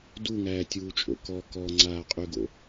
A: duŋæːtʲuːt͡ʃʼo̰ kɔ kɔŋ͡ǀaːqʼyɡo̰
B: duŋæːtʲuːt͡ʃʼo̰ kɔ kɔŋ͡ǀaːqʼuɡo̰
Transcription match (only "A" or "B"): A